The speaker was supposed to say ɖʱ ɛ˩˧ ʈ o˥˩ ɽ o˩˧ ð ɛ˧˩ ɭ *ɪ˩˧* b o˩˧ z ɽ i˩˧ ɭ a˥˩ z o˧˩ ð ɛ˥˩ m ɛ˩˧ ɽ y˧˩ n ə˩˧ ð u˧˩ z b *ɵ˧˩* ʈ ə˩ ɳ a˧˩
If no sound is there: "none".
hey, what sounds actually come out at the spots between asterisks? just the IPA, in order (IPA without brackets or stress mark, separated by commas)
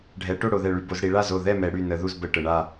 y˩˧, ə˧˩